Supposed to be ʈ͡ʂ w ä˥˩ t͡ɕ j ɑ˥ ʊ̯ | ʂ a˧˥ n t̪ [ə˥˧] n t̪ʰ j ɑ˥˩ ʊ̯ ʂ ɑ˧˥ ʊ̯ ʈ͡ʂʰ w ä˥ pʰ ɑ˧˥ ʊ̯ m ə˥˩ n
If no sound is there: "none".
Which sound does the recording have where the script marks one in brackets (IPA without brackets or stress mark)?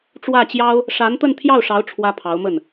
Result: ə˥˧